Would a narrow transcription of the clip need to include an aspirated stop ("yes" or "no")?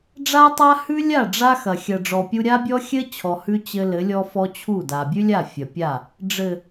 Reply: yes